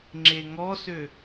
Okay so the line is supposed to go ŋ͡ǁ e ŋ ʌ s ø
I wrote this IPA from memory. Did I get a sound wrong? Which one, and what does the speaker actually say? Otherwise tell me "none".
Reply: ʌ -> ɔ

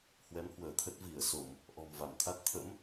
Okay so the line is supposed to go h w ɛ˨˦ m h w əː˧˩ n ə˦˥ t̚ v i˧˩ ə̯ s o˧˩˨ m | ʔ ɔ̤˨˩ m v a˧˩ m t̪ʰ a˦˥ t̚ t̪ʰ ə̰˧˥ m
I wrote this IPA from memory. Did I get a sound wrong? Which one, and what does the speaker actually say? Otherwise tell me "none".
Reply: n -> t̪ʰ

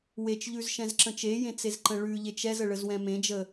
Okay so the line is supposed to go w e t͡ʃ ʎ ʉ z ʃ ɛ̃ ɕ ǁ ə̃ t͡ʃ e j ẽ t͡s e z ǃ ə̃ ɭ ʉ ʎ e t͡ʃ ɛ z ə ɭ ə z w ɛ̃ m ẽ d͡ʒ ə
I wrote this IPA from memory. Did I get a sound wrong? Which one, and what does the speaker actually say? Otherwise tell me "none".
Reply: ɕ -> z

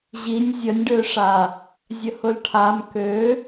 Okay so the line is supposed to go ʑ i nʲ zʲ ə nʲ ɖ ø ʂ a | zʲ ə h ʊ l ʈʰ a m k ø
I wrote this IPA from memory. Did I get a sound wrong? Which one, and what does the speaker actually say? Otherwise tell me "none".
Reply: none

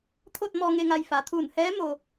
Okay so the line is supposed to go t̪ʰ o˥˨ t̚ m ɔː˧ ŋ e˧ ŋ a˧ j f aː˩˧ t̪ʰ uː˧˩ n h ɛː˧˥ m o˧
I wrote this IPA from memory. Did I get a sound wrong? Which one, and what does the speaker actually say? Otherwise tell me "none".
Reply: none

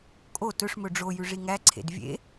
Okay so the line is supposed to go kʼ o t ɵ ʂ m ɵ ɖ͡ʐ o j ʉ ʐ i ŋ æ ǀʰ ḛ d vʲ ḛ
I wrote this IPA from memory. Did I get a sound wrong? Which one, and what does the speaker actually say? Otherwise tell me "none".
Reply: none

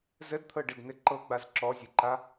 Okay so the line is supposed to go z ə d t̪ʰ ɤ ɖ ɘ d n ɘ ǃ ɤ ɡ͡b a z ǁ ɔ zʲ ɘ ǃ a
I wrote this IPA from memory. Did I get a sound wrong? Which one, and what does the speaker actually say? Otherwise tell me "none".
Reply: none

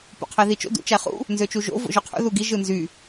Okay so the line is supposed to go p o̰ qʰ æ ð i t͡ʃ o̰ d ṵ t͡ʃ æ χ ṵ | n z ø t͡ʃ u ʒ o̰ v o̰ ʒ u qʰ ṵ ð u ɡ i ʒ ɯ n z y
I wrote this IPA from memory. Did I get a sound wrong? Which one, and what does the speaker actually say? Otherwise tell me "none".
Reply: none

